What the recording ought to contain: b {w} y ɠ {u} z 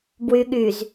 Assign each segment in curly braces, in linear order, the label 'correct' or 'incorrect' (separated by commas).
correct, incorrect